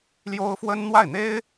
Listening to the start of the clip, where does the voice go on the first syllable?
high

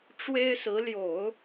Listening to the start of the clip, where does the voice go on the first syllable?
high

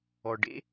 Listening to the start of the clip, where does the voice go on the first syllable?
low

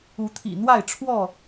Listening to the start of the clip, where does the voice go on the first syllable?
rising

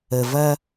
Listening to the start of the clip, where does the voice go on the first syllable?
low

